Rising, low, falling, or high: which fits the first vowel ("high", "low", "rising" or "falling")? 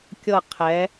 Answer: falling